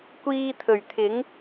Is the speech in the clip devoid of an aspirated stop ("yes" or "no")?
no